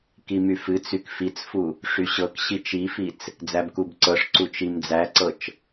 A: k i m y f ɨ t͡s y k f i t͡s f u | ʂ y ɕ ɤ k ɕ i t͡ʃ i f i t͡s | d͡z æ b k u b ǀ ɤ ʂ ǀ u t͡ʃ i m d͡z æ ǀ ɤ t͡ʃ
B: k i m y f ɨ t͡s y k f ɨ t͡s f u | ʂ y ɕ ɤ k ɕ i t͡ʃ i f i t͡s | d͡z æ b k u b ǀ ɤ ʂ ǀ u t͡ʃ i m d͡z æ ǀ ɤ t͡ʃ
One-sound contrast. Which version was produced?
A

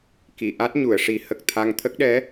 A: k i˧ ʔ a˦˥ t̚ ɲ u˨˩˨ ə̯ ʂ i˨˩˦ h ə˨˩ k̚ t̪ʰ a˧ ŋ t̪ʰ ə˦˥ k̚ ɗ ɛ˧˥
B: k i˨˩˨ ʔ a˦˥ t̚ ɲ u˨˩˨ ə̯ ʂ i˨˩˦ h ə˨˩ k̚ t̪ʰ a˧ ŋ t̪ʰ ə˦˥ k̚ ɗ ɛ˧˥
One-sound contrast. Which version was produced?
B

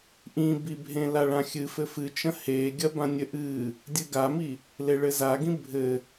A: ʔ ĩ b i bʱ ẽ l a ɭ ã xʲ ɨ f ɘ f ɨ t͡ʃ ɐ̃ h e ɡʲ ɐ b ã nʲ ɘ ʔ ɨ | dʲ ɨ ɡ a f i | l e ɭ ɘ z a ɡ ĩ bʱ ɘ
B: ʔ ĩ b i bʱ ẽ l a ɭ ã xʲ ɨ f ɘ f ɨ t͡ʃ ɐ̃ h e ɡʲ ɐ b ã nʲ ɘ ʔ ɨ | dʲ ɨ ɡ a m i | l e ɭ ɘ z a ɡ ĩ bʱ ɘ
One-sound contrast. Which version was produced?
B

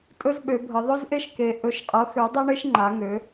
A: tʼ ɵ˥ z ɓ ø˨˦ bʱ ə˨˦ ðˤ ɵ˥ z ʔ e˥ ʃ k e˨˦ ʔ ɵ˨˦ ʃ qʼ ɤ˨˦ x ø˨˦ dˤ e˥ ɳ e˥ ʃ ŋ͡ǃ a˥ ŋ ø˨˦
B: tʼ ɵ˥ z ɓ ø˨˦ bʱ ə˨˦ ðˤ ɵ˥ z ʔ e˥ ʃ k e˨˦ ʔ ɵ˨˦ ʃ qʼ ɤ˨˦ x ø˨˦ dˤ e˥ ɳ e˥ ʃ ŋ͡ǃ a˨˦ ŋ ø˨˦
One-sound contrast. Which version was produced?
B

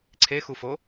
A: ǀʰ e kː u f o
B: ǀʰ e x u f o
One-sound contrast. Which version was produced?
B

